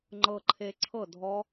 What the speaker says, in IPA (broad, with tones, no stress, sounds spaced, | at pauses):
ŋ͡ǃ ɤ˧ ǃʰ e˧ ǀʰ ɤ˥˨ dʱ ɔ˦˥